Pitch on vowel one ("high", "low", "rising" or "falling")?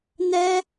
high